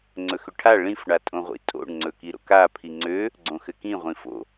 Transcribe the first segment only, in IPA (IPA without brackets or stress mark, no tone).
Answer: ŋ͡ǀ